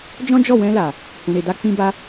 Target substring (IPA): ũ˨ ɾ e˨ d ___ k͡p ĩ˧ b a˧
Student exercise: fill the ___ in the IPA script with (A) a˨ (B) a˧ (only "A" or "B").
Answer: B